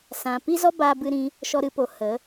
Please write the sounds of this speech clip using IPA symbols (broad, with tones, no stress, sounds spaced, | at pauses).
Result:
s ã˨ p i˦ z ɔ˦ b aː˦ b ɨ˦ ɾ ĩ˦ | ʃ ɔ˧ ɾ ɨ˧ p o˨ h ə˨˦